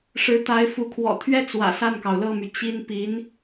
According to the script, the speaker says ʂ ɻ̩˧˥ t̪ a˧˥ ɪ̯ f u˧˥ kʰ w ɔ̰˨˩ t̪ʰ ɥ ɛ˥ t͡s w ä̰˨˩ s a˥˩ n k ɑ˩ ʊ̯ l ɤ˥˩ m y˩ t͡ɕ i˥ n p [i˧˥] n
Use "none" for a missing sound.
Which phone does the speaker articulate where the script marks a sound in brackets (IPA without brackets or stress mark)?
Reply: i˧˥